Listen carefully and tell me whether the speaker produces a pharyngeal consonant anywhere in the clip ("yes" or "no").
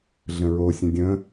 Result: no